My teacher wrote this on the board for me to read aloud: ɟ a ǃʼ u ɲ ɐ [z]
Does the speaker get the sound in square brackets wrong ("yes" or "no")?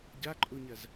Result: no